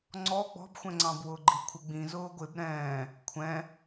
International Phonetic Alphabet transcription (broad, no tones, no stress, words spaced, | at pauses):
ŋ͡ǀɔ ɡ͡bɔ̤bxʷɛ̃ŋ͡ǀɑ̃bwʊː ɡ͡ǃikʷʰɪɡ͡bĩ zʊːɡʷɪb ɾɛ̃ː | kʷʰɛ̃